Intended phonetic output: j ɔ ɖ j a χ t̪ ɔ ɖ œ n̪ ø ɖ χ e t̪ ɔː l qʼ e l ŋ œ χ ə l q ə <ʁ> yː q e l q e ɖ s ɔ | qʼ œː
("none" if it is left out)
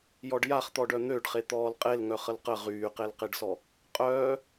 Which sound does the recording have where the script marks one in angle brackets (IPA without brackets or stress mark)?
ʁ